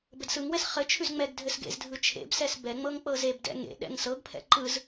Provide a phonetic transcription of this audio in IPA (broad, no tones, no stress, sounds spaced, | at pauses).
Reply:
b ɘ d s ɯ ŋ w ɛ s χ ɘ t͡ʃʰ ʉ z ŋ͡m ɛ ɡ dʱ ɘ s ɡ ḛ z dʱ ɯ t͡ʃʰ ḛ b s ɛ s b ɛ ŋ͡m ɤ ŋ k͡p ɤ z e b d ɛ̰ ŋ ḛ ɗ ɛ̰ ŋ s ɤ ɡ pʰ ɛ̰ ǃ ɯ z